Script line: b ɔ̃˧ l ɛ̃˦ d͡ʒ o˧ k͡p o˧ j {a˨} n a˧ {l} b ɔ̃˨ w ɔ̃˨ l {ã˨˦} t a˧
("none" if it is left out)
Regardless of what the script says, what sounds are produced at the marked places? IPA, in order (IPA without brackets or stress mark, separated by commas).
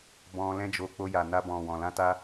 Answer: a˨, none, ã˧